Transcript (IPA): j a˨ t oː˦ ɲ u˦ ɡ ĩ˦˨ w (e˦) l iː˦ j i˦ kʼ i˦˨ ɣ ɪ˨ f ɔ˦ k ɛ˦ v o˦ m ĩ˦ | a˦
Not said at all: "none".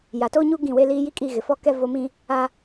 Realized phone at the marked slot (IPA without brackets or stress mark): e˦